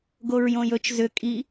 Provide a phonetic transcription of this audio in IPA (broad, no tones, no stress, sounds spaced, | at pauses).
ɡ o ɹ j õ j ɵ t͡ʃ z ʏ kʼ i